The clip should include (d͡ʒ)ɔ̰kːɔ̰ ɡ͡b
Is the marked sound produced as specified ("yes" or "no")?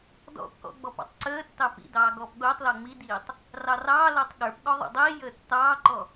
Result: no